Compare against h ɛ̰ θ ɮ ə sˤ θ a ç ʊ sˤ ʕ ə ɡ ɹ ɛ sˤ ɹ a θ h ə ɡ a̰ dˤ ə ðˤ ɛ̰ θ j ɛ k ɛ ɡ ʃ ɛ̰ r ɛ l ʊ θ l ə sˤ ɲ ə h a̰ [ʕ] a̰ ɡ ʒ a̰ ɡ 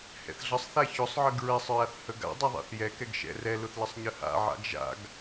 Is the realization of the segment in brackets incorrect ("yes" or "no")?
no